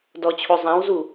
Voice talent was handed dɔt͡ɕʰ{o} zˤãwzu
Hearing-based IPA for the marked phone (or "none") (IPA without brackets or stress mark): o